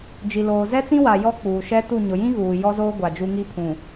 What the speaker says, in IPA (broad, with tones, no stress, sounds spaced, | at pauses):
d͡ʒ i˨ l oː˨ z ɛ˦ t͡s ĩ˦ w a˨ j ɔ˦ k͡p uː˨ ʃ ɛ˦ t u˦˨ ɲ ʊ˨ j ĩ˦ ɣ uː˨ j ɔ˦ z oː˦ ɡʷ a˨ d͡ʒ u˦ ŋ i˦ pʰ ũ˨